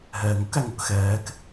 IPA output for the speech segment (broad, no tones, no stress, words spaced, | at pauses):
ɦɛːŋʊk æŋʊkxɛːk